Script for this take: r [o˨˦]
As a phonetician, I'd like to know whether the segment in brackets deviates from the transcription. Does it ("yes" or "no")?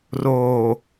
yes